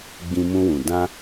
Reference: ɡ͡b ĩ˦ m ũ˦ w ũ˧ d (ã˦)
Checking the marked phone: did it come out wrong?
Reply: no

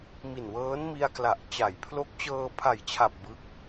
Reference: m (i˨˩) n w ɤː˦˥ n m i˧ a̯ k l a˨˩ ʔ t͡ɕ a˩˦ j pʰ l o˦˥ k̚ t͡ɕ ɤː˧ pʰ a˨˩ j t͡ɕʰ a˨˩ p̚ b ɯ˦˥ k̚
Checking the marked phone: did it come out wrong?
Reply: no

